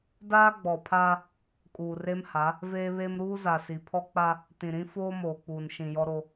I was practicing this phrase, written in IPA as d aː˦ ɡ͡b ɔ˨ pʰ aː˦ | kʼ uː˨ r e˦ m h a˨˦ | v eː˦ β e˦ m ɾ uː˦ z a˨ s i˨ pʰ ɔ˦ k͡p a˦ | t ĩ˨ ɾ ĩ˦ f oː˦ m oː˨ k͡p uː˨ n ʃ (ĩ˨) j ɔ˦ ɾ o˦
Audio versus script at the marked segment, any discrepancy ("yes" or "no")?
no